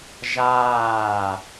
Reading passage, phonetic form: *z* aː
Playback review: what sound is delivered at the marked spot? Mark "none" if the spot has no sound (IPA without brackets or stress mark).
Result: ʒ